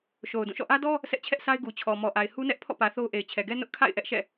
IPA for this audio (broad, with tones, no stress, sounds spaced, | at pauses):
ʃ o˨ ʊ̯ d ũ˦˨ ʃ ɔ̰˦˨ ʔ ä˦ d ɔ˦ | sʰ ɛ˦ ʔ t͡ɕʰ ɛ˦ ʔ sʰ a˦ ɪ̯ ɡ u˨ t͡ɕʰ ɔ˨ m ɔ˨ ʔ a˨ ɪ̯ h u˦ n ɛ˦ ʔ pʰ ɔ̰˦˨ p ä˨ θ o˦ ʊ̯ ʔ e˨ ɪ̯ t͡ɕʰ ɛ˨ ɡ ɛ˦ n ʊ˦ ʔ kʰ a̰˦˨ ɪ̯ ʔ ɛ˦ ʔ ʃ ɛ̰˦˨